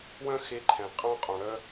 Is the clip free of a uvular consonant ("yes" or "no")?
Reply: no